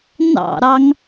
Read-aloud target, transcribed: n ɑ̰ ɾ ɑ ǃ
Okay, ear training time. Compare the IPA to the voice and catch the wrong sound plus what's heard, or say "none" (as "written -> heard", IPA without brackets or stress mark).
ǃ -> ŋ